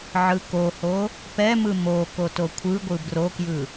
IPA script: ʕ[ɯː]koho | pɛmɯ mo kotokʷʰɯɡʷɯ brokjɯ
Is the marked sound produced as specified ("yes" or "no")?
no